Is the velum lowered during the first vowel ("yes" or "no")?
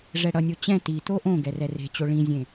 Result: no